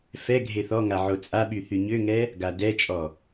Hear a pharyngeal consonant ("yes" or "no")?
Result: yes